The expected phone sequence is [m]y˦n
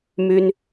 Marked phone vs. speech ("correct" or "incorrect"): correct